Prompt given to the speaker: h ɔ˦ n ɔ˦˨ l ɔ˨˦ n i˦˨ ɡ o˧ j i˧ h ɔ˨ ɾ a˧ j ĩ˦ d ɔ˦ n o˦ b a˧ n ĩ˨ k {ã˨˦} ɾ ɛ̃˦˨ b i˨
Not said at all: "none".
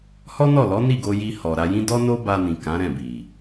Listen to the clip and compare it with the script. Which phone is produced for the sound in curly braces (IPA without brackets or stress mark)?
ã˨˦